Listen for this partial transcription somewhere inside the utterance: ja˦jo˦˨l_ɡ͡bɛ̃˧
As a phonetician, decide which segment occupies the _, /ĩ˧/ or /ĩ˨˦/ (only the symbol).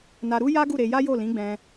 ĩ˨˦